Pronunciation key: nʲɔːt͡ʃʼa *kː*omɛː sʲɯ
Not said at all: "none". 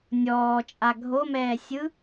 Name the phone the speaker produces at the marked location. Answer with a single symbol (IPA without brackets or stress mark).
ɡʱ